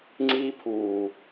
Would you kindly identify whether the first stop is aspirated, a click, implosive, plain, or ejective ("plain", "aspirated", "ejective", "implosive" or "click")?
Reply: click